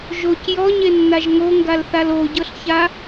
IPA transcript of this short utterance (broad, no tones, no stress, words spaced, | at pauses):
ʒoc jɔɲenːaʒ ŋoŋɡalθal oɟɤɬça